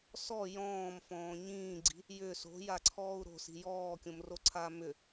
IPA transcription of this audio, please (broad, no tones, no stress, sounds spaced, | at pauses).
s ɔ j ɔ̃ː m f ɔ̃ː ɲ ĩː ɡ͡ǀ i̤ | j ʏ s o̤ j a ǀʰ ɔː u̯ ɾ o̤ s i̤ j ɔː kʲ õ m r o ǀʰ aː m ʏ